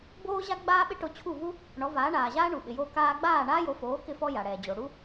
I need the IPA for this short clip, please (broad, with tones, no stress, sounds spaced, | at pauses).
b oː˥ ʑ a˥ ɡ͡b aː˥ ɓ ɪ˥ ʈ o˧ t͡ɕʰ u˥˩ v u˥ | ɳ ɔ˩˥ v aː˩˥ ɳ aː˩ ʑ aː˥ ɳ u˩ ɓ ɪ˩ j oː˧ k aː˧ ɡ͡b aː˥˩ ɳ aː˥ j o˩˥ f oː˩˥ k ɪ˧ f ɔ˧ j a˩ ɽ ɛː˩ d͡ʑ o˩ ɽ u˥